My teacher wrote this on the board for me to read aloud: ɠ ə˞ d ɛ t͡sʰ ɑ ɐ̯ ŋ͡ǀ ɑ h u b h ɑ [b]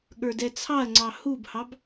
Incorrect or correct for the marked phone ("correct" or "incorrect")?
correct